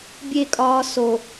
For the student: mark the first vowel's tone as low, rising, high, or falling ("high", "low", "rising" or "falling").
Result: high